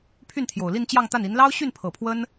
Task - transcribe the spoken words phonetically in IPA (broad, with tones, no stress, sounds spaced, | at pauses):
pʰ y˥˩ n t̪ʰ j o˨˩ ʊ̯ l i˥˧ n t͡ɕ j ɑ˥˧ ŋ t̪ a˥˩ n i˧˥ n l ɑ˥ ʊ̯ ɕ y˥˩ n pʰ ɤ˨˩ pʰ w ə˥ n